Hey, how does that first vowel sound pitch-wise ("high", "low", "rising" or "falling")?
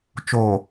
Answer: low